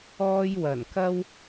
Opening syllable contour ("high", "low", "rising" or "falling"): high